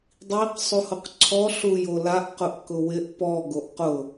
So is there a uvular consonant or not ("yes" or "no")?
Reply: yes